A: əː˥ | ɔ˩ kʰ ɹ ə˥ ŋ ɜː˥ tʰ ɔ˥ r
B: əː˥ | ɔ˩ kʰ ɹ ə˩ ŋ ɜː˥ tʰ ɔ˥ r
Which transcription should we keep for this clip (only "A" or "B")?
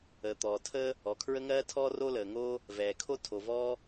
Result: A